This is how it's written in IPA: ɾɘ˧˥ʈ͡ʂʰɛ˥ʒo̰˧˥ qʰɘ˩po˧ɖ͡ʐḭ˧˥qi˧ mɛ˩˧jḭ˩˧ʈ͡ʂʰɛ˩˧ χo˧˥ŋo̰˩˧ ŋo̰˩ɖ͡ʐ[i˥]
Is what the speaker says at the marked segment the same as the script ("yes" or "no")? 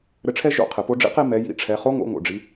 no